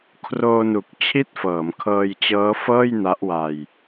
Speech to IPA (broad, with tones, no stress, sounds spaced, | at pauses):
kʰ r oː˧ n u˨˩ k̚ t͡ɕʰ i˥˩ t̚ f ɤː˩˦ m kʰ ɤː˧ j t͡ɕ ɤː˦˥ f ɤː˥˩ j n a˦˥ ʔ w a˧ j